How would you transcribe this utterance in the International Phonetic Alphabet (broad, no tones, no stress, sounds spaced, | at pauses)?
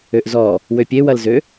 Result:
ø ʔ z ɔ | w ø pʲ e w ɐ l z ø